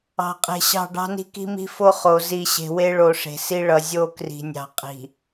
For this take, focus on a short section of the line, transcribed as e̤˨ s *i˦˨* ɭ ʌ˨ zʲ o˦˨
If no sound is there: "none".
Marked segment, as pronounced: i˦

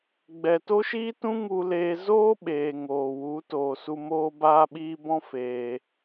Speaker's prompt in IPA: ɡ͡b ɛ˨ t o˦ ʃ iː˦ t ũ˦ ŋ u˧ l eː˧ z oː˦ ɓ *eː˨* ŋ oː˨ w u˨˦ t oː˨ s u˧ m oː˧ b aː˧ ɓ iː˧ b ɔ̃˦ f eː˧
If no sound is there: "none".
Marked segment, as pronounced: eː˨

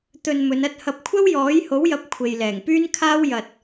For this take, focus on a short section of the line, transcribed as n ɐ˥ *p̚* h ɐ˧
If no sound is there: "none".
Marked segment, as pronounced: t̚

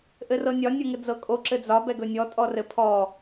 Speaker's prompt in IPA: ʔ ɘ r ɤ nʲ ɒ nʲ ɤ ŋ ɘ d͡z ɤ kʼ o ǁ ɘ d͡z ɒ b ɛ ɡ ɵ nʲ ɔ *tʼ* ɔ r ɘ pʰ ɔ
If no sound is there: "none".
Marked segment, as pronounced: tʼ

